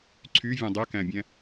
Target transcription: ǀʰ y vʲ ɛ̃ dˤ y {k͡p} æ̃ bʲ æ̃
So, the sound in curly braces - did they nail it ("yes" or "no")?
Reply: no